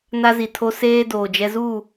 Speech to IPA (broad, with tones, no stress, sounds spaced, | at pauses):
n a˦ z i˨ tʰ o˦ s eː˦ d oː˨ d͡ʒ ɛ˦ z u˦˨